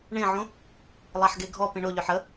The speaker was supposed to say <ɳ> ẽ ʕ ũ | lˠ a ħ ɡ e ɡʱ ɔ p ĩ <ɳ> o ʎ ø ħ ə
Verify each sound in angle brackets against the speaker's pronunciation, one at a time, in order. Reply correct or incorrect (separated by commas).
correct, correct